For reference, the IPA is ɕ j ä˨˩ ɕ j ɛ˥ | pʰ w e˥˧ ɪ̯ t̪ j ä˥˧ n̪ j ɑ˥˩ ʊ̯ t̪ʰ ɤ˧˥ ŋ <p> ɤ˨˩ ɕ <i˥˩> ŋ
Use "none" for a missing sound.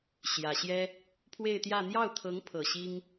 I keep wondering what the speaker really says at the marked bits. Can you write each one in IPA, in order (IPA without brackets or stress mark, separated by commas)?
pʰ, i˥